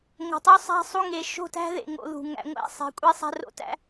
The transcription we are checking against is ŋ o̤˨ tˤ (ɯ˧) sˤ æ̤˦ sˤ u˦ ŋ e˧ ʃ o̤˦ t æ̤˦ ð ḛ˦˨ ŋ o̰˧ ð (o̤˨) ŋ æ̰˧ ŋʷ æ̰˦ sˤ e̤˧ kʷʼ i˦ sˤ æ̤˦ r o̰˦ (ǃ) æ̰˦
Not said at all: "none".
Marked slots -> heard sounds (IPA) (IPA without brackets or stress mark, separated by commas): u˧, ṳ˨, t